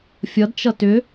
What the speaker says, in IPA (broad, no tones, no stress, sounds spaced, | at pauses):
fʲ ʌ d t͡ʃ ʌ t ʏ